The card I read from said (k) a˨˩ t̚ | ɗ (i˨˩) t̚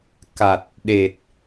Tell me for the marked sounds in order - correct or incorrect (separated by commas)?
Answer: correct, incorrect